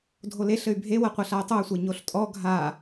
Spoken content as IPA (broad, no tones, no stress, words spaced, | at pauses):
dʱoleɬɘy̯ bʱewɐ qʷɐɬay̯tˤuy̯sʷe ɲoɬtʼɔ ɡʱa